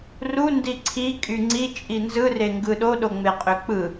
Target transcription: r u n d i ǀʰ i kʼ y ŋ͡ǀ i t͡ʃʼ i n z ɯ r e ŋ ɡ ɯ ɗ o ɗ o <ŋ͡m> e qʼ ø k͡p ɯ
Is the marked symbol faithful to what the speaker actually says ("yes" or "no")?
yes